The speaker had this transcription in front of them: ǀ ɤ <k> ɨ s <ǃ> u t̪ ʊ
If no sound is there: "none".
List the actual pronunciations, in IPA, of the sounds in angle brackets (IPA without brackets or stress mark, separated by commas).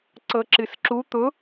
ǁ, ǁ